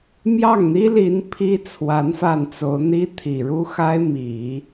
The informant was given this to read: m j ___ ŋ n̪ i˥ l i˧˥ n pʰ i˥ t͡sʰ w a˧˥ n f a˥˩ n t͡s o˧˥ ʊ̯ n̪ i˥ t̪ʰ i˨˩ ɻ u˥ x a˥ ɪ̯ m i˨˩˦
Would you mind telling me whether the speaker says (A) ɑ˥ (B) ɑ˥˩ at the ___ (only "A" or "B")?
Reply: B